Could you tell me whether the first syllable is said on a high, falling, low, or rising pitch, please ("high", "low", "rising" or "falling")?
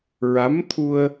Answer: rising